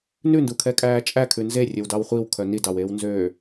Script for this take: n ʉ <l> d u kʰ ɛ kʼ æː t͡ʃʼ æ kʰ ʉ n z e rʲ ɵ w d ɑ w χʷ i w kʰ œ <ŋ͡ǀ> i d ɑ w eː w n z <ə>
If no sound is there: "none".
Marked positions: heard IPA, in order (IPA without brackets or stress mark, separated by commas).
n, n, ø